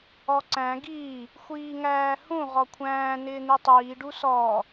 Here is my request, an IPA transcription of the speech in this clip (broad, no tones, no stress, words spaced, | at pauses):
ɔǀæ̃ ɡiː | xʷiːŋæːhũ ʁɔkʷʰæ̃ː nɪːn̪itˤiː ɖusɔː